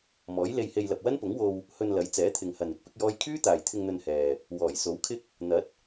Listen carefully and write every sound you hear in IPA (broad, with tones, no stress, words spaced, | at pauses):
mɔː˨˥jle˧jhe˧j lɐ˨p̚wɐ˥npʊ˨˥ŋwo˧w | hɵ˨n lɐ˨˥jt͡sɛː˨˥t̪ʰɪ˨ŋhɐ˨n ɪ˥k̚pɪ˥k̚jɔː˥j kʰyː˥t̪aː˨jt̪ʰɪ˧ŋ n̪ɵ˧nhɛː˨ | wɔː˨˩jso˨˥wkʰɪ˥k̚ | n̪ɐ˨˥t̚